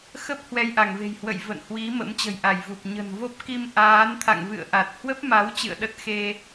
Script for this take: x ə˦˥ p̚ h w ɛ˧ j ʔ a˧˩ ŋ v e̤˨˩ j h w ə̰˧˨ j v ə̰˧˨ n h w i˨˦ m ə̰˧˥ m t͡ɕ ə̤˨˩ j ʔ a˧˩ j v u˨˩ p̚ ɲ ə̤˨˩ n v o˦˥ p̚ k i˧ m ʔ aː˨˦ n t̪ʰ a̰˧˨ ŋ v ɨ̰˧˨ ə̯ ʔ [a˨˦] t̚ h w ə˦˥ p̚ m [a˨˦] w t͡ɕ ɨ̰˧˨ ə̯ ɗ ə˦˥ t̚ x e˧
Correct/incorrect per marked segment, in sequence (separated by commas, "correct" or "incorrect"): incorrect, correct